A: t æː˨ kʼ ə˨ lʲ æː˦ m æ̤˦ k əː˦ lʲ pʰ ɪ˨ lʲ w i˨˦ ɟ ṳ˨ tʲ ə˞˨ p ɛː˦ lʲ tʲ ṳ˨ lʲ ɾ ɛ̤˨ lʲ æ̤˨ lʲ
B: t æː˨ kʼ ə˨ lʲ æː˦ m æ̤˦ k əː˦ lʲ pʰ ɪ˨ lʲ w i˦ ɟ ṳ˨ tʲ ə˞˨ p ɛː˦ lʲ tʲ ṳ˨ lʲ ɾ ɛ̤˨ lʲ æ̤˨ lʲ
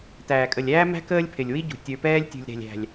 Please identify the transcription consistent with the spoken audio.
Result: B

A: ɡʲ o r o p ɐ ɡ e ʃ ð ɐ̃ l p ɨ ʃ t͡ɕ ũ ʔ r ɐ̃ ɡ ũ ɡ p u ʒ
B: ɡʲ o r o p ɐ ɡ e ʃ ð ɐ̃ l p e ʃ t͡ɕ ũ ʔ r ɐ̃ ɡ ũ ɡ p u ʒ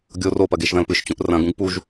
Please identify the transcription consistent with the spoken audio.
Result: A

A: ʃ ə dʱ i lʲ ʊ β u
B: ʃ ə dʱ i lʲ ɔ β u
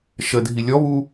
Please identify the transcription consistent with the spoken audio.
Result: B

